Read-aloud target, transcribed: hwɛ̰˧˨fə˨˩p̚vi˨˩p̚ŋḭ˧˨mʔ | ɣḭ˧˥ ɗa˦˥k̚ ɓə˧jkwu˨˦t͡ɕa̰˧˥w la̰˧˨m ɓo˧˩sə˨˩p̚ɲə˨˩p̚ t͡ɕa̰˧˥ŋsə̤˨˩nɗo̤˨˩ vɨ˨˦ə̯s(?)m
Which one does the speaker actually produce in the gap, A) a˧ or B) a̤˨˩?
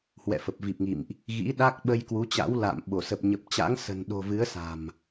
B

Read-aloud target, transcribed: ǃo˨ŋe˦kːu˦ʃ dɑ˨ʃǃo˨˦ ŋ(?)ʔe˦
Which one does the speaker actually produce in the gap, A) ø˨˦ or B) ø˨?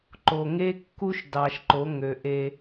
B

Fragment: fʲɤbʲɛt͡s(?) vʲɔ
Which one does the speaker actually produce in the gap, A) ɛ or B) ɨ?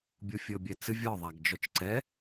B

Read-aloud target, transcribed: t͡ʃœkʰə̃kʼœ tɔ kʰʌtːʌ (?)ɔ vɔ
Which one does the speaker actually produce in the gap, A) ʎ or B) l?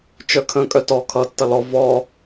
B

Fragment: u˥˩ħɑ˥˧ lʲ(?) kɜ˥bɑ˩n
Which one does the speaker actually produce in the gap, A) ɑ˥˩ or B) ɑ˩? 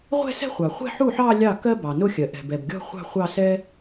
A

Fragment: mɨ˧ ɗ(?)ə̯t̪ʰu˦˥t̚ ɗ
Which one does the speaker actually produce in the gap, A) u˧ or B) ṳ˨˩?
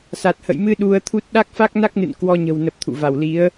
A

